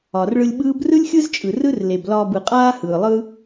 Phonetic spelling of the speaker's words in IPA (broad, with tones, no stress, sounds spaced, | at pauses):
ɒ˨ r ɭ ɯ˧ lʲ ɓ ɯː˦ b r ɯ˦ lʲ xʲ ɯ˦ z t͡ʃʼ ɯ˨ r ɯ˦ r l e˨ b l ɒː˧ b ɯ˨ qʼ aː˦ h ɯː˨ lˠ ɯ˦